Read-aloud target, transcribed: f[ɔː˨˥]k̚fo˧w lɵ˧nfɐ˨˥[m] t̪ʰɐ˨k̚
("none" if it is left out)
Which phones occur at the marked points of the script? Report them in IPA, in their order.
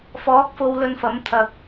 ɔː˨˥, m

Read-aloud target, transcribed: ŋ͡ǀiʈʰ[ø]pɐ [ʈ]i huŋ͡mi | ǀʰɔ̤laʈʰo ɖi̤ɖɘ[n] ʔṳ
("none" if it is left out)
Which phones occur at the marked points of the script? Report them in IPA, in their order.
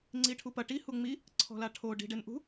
u, ʈ, n

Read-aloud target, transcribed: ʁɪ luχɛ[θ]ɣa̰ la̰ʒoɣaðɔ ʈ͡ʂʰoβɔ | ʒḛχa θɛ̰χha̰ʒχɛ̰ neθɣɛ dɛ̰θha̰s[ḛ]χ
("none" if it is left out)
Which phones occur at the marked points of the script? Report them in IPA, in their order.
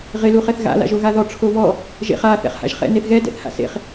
θ, ḛ

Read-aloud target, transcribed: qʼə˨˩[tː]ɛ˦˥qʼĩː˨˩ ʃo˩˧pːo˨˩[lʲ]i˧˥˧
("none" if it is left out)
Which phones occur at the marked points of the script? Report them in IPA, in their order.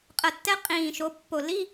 tː, l

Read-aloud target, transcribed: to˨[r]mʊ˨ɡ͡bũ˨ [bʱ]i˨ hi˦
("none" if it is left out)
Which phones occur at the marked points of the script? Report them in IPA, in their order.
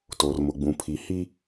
r, pʰ

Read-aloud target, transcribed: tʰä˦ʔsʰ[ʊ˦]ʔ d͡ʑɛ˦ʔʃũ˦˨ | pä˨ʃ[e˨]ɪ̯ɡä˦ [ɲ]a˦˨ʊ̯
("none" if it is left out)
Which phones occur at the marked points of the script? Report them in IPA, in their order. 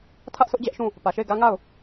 ʊ˦, e˦˨, ŋ

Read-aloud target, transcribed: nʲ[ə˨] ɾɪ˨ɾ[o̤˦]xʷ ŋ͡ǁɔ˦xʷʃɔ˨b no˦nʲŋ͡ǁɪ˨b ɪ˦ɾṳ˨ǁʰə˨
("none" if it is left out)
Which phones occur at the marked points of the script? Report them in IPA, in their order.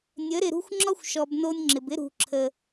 ə˨˦, ṳ˦

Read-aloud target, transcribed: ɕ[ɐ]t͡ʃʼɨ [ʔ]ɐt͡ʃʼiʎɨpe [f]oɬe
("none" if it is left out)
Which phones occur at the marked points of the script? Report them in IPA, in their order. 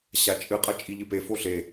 a, qʼ, f

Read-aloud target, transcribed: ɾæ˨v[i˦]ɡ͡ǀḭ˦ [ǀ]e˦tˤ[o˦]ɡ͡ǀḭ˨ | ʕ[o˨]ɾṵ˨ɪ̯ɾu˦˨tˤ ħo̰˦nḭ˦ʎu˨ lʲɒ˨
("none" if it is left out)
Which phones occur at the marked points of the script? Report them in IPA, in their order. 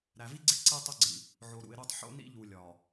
i˦, ǀ, o˦, o˨

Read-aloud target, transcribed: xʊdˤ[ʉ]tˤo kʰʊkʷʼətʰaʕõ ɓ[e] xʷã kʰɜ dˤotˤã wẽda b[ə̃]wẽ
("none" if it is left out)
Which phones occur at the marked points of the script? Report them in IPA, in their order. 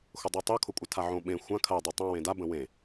ʉ, ẽ, ə̃

